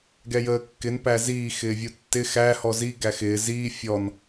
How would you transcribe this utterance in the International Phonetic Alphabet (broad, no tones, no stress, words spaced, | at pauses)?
ɡɛjəːkːɪn pæziː xɪːvʲutːɪ xæ hɔzi ɡæxɪː ziː fʲɔn